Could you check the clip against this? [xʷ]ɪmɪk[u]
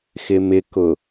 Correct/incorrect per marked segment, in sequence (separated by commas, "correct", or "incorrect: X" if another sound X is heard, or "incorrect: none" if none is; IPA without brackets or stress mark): incorrect: x, incorrect: ʊ